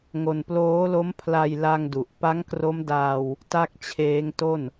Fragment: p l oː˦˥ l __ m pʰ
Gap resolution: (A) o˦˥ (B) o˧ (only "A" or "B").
A